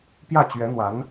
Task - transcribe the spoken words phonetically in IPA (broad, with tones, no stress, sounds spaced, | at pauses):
p j ä˥˩ t͡ɕ ɥ ɛ˧˥ n̪ w a˧˥ n